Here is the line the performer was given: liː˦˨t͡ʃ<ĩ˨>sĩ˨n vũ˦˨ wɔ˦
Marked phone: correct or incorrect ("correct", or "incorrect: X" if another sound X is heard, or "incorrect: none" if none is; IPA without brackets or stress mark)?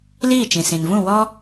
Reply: correct